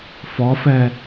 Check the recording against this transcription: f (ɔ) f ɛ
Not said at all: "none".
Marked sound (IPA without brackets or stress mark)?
ɔ